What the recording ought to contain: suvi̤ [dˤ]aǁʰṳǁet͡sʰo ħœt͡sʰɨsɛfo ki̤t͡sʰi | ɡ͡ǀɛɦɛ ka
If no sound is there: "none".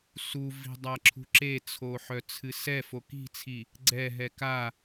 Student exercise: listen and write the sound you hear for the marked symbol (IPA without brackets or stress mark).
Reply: dˤ